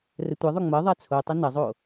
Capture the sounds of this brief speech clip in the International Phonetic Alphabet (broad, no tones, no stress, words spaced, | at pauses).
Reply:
rətʷɐðˤʊ ŋ͡mɐ ðˤat͡sʰotˤɐ nɐzˤo